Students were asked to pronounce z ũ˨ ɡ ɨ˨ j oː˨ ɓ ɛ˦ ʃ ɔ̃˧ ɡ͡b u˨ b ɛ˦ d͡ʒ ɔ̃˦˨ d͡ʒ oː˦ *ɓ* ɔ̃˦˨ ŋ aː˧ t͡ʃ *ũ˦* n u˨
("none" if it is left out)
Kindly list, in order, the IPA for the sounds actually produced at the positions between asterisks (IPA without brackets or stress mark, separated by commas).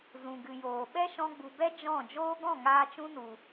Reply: ɡ, ũ˦